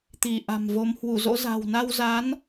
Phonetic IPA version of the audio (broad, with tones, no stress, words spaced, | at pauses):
t̪i˧˩ʔa̤˨˩mvo˨˦m hwu˧˩zo̰˧˥za̤˨˩w na˧wza˨˦n